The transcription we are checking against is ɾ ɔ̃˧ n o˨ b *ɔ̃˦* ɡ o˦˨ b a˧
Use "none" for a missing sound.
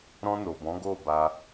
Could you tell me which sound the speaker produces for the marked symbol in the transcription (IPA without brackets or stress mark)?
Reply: ɔ̃˨˦